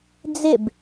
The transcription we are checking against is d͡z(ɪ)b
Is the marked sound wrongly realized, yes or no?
no